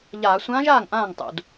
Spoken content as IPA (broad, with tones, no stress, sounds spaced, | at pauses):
ʎ aː˧˩˧ sʷ ãː˧˥ ʒ aː˥˩ ŋ ʔ ãː˥˩ ŋ tˤ ṵ˧˩˧ d